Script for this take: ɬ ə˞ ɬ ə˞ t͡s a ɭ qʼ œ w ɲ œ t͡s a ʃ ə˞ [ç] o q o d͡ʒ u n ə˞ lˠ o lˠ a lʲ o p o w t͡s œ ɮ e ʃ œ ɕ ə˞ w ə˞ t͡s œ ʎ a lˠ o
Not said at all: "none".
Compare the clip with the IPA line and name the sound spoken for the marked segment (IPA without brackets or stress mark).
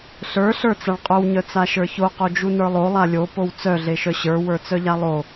ç